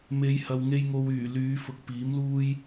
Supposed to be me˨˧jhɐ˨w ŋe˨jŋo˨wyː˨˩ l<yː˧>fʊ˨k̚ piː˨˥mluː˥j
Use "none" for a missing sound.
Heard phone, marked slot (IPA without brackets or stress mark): yː˨˧